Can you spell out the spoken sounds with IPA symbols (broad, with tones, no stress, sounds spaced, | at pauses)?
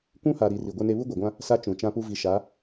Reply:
kʷ ũ˦ h a˨ ɾ i˨ r i˨ ɡʷ e˦ n e˦ β u˦ ɡʷ a˨ ɡʷ ã˦ | s a˦ t͡ʃ ũ˨ t͡ʃ ã˦ p u˦ v i˨ ʃ a˨˦